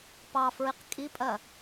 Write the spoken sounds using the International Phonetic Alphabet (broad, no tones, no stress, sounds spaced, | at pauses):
p ɑ f ɹ i q kʼ i pʼ ɜ